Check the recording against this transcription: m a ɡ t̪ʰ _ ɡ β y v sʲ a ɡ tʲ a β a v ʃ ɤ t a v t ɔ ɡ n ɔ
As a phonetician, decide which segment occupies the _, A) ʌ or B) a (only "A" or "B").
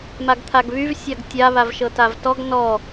B